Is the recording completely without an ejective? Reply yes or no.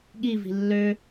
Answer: yes